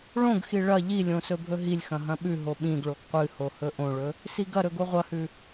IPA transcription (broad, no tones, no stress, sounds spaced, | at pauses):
ɭ õ ɡ x i ɭ ɐ ʎ i lʲ õ s ɵ bʱ ɵ ɦ i lʲ x ɐ̃ ɦ ɐ̃ ɓ ʉ ɦ o ɓ ĩ ɡ ɭ o ɡ qʷ ɨ h o h ɵ ʔ õ ɭ ɵ | s i ɡ ɐ ɾ ɵ ɡ o ʁʷ ɐ h ʉ